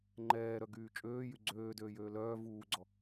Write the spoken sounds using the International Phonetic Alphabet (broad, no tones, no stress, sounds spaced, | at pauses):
ŋ͡ǃ ɛː ɾ œ ɡ yː t͡ʃʼ øː j y ɡ͡ǀ øː d øː j øː l œː v uː ɡ͡ǀ ɔ